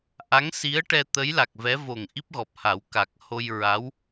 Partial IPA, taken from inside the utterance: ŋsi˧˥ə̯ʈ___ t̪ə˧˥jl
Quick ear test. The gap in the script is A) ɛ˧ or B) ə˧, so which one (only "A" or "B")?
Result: A